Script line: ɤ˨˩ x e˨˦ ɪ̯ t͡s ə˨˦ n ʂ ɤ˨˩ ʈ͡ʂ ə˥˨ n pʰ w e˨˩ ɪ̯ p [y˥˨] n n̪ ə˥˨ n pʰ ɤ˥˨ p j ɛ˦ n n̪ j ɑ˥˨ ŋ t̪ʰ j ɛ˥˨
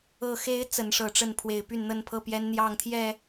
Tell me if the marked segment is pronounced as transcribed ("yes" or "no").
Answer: yes